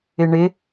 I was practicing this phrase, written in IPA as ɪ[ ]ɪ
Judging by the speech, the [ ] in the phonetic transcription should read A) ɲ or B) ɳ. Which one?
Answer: B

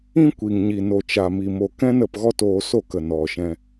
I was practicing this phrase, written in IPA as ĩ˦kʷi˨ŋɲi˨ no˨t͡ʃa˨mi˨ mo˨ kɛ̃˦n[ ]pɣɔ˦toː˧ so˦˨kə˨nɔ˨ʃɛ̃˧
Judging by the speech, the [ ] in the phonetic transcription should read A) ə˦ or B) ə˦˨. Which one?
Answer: B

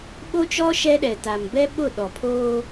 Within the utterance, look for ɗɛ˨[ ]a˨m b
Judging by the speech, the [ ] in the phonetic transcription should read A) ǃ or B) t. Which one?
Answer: B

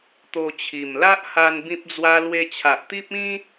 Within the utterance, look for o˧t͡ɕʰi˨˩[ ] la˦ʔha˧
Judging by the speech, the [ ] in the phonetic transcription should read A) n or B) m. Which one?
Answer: B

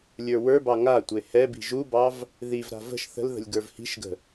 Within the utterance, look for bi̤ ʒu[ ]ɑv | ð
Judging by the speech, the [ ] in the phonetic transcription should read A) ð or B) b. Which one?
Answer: B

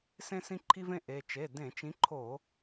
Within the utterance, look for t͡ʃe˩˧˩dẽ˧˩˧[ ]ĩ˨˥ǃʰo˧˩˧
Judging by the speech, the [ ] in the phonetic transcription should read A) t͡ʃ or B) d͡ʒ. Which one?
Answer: A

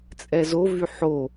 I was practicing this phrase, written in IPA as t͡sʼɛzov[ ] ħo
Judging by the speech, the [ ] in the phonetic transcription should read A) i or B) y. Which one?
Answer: B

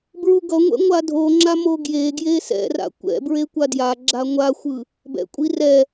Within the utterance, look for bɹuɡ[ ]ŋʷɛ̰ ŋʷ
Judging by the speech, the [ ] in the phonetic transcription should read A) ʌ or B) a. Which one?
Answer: A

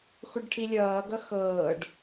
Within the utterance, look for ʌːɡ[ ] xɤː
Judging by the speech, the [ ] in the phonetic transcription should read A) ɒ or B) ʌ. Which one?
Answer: B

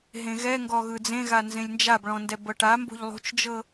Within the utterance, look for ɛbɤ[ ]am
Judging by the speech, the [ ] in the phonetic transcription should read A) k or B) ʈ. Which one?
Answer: B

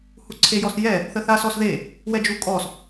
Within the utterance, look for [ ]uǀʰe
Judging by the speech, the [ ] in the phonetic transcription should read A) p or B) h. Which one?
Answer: B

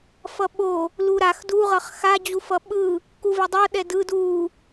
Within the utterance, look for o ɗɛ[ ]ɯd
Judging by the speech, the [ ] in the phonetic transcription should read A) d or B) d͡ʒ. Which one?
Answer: A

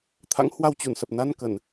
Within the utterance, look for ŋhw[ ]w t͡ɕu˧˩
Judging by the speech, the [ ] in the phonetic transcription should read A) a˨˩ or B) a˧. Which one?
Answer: B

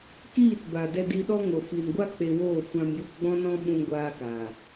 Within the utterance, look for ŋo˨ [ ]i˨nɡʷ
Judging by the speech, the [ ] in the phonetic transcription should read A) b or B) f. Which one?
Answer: B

